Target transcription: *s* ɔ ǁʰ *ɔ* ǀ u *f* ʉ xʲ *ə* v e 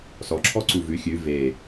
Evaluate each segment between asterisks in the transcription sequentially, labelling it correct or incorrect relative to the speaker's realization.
correct, correct, incorrect: v, incorrect: ʉ

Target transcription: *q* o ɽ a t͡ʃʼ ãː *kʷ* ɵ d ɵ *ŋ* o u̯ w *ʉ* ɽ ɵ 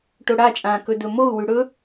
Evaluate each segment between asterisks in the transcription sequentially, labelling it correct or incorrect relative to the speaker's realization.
incorrect: ʈ, incorrect: k, incorrect: m, correct

